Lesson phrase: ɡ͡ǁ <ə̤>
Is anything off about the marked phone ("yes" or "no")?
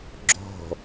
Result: yes